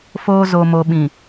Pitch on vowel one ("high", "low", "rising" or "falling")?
high